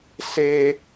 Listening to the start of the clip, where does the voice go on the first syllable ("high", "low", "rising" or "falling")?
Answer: high